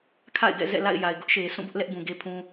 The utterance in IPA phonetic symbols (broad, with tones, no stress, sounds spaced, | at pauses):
kʰ a̰˦˨ ɪ̯ ɡ ɛ̰˦˨ z ɛ̰˦˨ l a̰˦˨ ɪ̯ j a˨ ɪ̯ ɡ ʊ˦ ʔ ʃ e˨ s ũ˦˨ b ʊ˦ ʔ l ɛ˦ ʔ b ũ˨ ɡ e˦ pʰ ũ˦